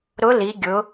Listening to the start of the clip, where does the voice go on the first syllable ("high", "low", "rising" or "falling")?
rising